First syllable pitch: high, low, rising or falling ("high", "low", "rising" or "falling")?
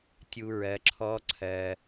low